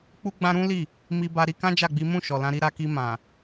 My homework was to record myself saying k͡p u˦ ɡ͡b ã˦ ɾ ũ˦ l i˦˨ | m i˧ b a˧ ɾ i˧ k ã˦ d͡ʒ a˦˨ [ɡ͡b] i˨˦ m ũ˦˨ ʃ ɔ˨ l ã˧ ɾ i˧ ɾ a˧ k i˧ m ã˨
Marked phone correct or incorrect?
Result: correct